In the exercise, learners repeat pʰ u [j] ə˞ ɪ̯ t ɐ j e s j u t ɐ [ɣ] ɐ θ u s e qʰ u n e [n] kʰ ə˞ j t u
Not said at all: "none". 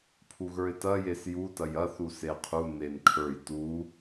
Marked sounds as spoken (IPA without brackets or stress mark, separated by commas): ɣ, j, n